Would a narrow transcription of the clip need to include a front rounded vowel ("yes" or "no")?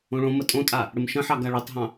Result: no